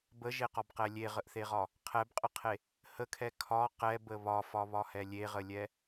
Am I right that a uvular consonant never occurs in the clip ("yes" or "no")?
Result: no